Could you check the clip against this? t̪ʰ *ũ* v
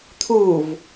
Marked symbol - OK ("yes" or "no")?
no